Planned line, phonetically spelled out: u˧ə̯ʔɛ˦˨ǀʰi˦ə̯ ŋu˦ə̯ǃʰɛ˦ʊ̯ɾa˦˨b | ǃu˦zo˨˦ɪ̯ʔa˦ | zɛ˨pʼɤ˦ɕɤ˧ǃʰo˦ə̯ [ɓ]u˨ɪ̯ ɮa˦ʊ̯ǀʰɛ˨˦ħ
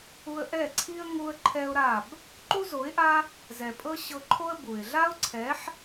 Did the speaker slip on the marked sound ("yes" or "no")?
yes